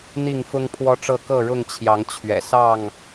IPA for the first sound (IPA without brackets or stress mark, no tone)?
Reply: n̪